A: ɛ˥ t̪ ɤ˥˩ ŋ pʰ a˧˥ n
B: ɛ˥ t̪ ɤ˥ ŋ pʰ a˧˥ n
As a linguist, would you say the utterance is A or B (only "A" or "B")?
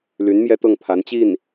A